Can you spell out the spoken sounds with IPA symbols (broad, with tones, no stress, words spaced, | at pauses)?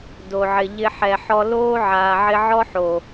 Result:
do˨ʕɪ˨ʎɪ˧ ħɛ˨ ħɔ˧ loː˦ʕaː˨ʕɪ˧ʕɔ˦ ħo˨